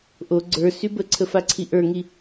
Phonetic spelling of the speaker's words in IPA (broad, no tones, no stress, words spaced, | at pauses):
ʔo ɡ͡ǀə˞ sybəǀʰə faǀʰiʔə˞ŋi